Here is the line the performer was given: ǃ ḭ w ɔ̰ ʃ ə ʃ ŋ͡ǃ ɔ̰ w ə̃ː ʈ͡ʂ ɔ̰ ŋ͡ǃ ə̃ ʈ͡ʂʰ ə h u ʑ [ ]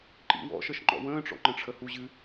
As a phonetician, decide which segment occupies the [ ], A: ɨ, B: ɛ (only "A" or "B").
A